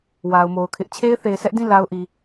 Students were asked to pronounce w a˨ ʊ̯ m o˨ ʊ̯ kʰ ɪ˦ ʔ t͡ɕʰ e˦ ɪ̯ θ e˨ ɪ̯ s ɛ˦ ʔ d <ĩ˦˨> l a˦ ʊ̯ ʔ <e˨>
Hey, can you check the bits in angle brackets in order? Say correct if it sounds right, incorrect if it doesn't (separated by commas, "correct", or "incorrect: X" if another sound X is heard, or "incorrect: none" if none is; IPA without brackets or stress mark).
correct, incorrect: i˨